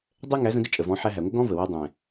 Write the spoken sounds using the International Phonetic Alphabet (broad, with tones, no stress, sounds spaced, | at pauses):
dˤ ɛ˦ ŋ æ˨˦ z ə̃˧ ɡ ə˦ t͡ʃʼ ə˨ v ɔ̃˨˦ ħ æ˧ ɦ æ˨ ŋʷ ə˦ ɡ ɔ̃˦ v ə˨ w ɛ˧ dˤ ɛ̃˨